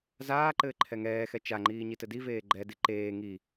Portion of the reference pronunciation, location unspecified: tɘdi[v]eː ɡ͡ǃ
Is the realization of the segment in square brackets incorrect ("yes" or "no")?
no